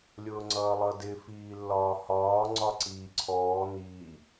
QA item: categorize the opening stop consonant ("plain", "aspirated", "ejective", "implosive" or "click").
click